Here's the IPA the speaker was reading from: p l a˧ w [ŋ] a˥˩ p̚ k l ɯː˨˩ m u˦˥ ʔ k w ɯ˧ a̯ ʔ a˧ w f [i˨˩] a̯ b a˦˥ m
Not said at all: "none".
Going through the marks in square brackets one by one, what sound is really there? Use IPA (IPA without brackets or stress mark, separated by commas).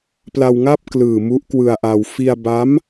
ŋ, i˧